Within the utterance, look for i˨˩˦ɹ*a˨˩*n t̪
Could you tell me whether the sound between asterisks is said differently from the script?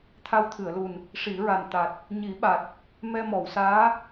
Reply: no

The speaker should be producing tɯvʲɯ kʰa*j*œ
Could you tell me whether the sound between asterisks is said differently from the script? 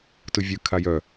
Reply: no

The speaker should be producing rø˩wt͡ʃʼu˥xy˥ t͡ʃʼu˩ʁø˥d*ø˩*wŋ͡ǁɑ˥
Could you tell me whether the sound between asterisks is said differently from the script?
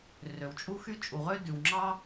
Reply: yes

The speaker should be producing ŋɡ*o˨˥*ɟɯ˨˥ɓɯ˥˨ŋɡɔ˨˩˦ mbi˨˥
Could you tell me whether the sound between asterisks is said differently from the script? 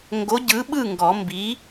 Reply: no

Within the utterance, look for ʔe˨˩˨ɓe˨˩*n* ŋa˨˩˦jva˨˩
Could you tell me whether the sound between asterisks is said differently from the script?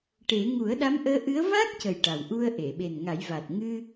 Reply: no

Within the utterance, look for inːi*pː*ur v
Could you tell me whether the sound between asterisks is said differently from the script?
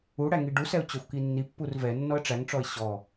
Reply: no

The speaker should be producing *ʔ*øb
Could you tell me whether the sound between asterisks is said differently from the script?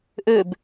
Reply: no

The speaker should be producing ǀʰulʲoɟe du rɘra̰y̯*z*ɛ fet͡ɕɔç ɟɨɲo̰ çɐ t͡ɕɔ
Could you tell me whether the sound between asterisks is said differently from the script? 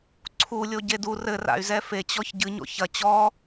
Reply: no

